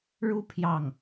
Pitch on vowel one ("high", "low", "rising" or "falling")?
high